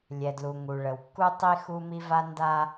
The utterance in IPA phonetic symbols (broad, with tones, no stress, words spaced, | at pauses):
lʲɛ˨dlu˨ŋu˨ ɭə˨wkːu˦ tˤi˦xu˦mi˦va˦ nda˦